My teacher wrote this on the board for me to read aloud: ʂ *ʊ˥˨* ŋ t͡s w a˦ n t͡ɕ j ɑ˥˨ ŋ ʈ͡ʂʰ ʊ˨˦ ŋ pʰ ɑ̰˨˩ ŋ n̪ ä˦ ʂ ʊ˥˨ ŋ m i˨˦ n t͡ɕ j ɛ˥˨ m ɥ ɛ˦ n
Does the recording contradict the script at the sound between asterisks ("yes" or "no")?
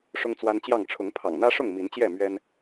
yes